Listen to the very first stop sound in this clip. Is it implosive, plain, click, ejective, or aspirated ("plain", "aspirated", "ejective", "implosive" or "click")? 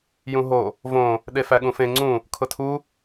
implosive